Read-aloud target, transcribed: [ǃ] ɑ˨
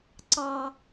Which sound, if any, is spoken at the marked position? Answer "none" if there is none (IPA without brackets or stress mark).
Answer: ǀ